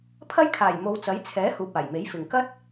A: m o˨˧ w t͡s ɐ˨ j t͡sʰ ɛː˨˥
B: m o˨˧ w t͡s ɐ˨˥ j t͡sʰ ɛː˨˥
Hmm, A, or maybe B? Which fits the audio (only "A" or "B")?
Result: B